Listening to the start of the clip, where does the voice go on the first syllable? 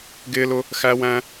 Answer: high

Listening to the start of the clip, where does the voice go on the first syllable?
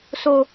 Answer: high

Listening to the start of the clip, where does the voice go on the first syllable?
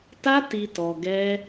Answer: high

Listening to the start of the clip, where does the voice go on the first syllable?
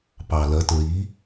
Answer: low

